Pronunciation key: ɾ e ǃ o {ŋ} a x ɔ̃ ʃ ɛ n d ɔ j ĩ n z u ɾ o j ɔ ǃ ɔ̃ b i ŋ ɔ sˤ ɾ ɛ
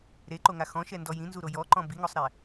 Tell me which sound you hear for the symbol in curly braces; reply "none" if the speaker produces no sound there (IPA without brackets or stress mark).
ŋ